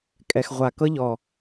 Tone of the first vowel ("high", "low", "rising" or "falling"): low